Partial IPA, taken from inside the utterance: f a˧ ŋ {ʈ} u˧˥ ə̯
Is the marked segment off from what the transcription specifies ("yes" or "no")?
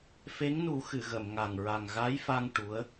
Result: no